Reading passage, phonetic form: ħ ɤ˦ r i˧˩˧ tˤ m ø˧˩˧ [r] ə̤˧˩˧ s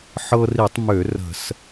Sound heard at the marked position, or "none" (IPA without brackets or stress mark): r